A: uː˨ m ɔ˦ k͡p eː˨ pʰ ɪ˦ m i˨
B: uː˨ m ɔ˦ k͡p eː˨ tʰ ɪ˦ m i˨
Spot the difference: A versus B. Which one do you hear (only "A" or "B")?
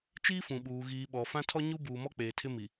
B